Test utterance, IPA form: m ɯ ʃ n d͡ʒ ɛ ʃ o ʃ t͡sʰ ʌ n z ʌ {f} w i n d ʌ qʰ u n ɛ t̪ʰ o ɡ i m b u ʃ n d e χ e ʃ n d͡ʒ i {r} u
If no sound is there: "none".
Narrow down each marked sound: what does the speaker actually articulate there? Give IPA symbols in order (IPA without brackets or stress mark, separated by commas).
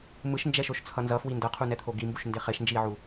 f, ʕ